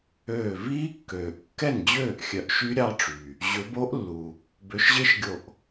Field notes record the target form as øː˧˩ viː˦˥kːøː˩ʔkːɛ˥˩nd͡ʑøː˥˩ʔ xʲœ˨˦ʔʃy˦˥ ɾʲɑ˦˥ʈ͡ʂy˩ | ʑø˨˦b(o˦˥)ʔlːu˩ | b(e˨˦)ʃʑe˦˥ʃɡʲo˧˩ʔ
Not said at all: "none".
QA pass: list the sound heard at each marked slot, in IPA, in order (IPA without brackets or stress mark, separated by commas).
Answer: o˦˥, ø˨˦